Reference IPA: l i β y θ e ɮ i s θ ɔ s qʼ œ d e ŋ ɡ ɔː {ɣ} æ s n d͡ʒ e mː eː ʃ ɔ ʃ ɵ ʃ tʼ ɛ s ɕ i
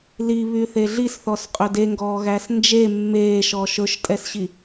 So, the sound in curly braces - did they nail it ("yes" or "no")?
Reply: yes